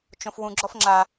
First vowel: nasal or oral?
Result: nasal